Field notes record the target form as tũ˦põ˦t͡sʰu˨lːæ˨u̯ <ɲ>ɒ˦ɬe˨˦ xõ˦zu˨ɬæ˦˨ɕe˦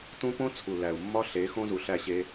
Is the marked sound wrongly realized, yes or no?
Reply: yes